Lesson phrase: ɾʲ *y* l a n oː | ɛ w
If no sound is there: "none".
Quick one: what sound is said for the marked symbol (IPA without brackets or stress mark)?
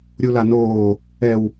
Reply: u